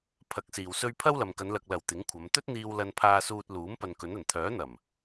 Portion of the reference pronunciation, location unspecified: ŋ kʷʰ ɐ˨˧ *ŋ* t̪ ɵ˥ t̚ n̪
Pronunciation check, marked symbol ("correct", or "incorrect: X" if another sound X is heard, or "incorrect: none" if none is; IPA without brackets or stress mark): incorrect: m